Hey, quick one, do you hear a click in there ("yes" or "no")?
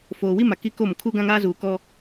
no